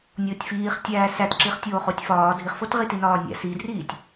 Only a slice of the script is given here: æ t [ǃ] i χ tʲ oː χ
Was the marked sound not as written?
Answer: yes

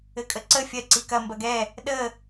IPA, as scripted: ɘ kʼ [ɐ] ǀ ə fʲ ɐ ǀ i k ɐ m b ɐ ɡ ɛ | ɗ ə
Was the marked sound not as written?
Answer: yes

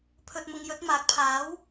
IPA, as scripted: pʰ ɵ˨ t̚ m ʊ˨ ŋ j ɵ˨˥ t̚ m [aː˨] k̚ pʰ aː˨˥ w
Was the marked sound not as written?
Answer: yes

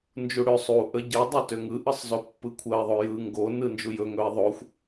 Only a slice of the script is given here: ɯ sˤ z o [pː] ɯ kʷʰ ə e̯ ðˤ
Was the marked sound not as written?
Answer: no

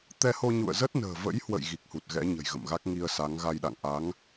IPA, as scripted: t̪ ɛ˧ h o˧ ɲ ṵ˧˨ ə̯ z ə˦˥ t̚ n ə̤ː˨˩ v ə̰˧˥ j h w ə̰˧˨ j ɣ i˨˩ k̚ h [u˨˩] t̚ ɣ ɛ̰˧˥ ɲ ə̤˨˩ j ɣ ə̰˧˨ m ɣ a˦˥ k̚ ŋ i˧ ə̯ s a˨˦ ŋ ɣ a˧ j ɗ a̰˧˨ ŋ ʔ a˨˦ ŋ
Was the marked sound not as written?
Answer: no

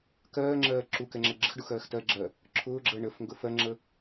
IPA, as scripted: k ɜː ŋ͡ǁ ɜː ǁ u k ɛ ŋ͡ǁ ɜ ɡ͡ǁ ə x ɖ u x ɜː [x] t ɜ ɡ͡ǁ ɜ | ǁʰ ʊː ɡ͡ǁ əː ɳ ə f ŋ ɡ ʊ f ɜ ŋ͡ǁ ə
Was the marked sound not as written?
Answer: no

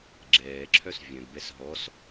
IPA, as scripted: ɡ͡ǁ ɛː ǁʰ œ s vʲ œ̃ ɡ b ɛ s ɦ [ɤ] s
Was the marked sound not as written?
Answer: yes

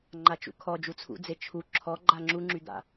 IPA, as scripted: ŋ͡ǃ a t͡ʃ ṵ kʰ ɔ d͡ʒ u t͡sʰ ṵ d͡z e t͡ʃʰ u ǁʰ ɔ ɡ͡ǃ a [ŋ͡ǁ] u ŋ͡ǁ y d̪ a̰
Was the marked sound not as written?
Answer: no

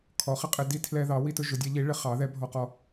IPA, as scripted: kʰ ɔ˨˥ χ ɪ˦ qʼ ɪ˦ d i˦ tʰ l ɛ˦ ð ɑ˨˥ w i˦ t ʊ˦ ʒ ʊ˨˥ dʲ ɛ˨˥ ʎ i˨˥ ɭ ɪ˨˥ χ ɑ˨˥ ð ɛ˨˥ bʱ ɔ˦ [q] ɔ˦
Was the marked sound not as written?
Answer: no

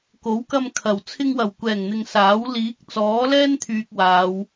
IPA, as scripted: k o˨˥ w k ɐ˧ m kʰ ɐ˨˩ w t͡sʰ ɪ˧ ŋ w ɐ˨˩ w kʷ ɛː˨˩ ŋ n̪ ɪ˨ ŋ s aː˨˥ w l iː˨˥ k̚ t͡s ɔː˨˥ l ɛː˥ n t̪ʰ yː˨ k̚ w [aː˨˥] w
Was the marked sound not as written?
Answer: yes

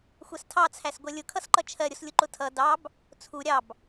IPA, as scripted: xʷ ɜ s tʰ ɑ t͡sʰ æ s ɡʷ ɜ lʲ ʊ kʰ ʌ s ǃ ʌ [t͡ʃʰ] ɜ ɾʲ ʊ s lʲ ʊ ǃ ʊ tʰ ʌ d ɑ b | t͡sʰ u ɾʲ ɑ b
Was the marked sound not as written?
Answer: no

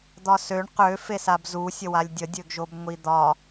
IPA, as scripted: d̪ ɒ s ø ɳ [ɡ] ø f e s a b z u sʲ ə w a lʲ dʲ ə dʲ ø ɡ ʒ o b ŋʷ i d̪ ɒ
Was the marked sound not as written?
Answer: yes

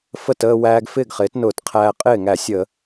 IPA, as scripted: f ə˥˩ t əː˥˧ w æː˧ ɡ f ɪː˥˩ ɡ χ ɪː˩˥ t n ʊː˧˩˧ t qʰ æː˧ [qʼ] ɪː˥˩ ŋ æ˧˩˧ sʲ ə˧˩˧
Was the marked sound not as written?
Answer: no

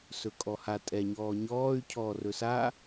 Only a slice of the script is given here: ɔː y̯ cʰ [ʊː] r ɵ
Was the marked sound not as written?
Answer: yes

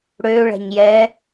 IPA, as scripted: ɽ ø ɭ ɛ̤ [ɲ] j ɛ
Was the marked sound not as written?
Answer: no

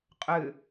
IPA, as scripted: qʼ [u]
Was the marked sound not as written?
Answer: yes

